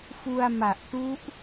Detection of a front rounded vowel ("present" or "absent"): absent